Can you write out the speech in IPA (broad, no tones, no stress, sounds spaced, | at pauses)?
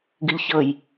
ɡ ɨ ʎ ç ɤ j